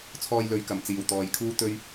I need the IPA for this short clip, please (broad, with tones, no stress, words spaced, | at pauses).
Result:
t͡sʰɔː˧jlɵ˨˧ɥ kɐ˨˩m t͡siː˨˩wt̪ɔː˨jkʰuː˥ t̪ɵ˥ɥ